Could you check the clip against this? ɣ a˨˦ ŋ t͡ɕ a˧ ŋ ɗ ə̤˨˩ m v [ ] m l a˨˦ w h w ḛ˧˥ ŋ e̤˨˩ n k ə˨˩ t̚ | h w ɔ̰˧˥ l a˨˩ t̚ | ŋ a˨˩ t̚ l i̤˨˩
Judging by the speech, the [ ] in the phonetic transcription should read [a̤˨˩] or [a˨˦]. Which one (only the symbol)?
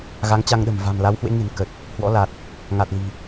a̤˨˩